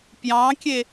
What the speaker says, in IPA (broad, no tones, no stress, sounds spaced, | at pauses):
p j ɑ̃ kʲ e